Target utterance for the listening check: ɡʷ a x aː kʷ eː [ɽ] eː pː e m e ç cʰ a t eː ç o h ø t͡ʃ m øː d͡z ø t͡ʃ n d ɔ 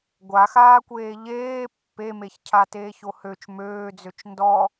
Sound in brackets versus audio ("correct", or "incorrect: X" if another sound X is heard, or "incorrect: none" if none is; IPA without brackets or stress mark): incorrect: ʎ